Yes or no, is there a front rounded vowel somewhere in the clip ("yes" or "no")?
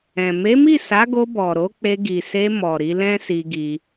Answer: no